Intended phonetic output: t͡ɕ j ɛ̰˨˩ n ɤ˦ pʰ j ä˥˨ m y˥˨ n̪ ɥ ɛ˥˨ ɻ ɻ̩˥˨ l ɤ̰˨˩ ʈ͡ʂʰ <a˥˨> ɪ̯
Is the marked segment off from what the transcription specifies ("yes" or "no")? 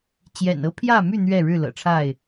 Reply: no